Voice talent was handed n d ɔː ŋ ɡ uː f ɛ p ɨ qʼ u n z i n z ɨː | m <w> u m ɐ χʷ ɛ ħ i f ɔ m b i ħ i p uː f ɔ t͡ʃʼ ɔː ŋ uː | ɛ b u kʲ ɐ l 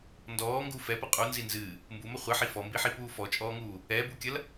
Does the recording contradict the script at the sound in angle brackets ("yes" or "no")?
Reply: yes